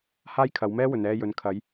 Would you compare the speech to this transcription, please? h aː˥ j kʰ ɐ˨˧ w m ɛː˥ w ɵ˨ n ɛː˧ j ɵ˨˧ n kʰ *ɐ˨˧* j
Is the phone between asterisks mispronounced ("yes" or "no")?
no